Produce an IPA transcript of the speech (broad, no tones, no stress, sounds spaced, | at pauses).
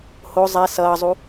h o zˤ ɛ s ʌː zˤ u